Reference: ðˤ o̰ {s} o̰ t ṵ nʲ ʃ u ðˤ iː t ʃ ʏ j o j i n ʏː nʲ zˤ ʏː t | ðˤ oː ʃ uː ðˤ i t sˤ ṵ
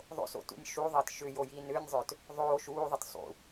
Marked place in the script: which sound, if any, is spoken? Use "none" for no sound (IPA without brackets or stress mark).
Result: s